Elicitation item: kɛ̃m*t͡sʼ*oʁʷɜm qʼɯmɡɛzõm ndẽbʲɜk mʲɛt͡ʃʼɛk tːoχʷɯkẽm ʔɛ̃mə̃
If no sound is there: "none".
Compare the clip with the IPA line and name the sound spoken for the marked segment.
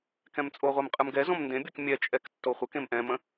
t͡sʼ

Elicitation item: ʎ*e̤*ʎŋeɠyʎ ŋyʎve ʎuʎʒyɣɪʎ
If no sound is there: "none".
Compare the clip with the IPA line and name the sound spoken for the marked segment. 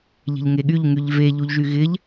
e̤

